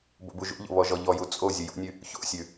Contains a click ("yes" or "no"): no